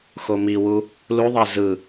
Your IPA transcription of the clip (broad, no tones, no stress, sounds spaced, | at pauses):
x o m i w u | l u ðˤ æ z ɯ